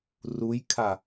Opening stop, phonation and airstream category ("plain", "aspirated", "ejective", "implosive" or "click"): aspirated